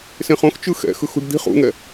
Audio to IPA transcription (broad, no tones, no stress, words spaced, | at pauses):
sẽχ õxt͡ʃɯ xɛ̰xɯxṳɖ d̪i̤χ ṵŋɛ